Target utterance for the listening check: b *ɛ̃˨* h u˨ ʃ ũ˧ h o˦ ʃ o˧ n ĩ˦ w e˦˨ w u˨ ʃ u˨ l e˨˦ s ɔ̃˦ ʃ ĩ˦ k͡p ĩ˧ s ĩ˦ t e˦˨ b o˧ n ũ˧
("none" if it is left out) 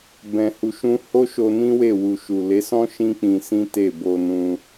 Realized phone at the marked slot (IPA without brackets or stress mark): ɛ̃˨